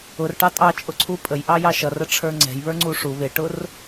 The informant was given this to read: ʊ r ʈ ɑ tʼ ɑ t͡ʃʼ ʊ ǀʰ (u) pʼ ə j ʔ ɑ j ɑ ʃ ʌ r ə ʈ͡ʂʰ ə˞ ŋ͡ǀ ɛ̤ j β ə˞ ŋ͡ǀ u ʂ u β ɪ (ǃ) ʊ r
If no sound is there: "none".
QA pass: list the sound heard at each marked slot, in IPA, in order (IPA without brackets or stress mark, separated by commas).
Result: u, ʈ